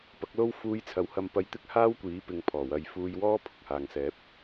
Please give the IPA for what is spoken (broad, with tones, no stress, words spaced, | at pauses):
pɐ˨˥k̚lo˥w fuː˧j t͡sʰɐ˨˥whɐ˧mpɐ˧j t̪ɪ˥k̚haː˥wkʷiː˨˥ pɪ˨˧ŋpʰɔː˨˩wɐ˨˧j fuː˧jwɔː˥ pʰʊ˨k̚haː˨ŋ sɛː˨˥p̚